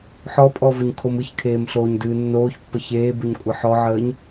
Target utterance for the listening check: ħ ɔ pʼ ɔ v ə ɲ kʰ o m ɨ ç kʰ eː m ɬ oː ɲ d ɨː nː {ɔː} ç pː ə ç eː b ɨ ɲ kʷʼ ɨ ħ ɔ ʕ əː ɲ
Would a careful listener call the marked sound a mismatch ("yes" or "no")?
yes